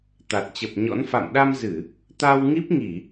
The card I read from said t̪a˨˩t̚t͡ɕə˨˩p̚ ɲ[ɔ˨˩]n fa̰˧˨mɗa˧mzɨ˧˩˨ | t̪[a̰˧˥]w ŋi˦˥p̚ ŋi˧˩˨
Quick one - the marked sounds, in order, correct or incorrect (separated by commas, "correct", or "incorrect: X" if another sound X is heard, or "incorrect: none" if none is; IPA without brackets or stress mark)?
incorrect: ɔ̰˧˥, incorrect: a˧